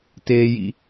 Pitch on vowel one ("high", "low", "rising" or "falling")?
low